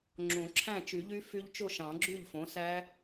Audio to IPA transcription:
ŋ͡ǁõ˨˩˦ǁʰæ̃˥˩t͡ʃy˨˩˦ʎy˦˥ fy˦˥ʎt͡ʃo˥˧ ʃɑ̃˨˩˦ɡ͡ǁy˥˩ʎfõ˩˥ sæ˦˥

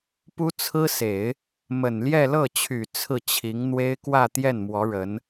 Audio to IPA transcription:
pu˥t͡sʰɹ̩˥se˨˩˦ɪ̯ | mə˨˩nljɛ˥˧ lɤ˥˩t͡ɕʰy˨˩ t͡sʰɹ̩˥˩ t͡ɕʰi˧˥ŋn̪we˥ɪ̯ kwä˥˧ t̪jɛ˥˩nmwɔ˧˥ ɻə˧˥n

